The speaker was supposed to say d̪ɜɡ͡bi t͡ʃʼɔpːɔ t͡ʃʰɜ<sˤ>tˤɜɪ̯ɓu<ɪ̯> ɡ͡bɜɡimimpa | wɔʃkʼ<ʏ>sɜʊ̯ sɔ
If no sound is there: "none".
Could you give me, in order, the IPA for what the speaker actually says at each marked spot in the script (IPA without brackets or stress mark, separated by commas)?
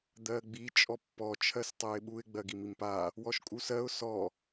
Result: s, ɪ̯, u